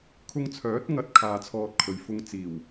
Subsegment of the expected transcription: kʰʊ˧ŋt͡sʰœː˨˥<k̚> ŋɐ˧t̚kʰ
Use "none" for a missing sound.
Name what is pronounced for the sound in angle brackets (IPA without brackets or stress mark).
t̚